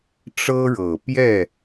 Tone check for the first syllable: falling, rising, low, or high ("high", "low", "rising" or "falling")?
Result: high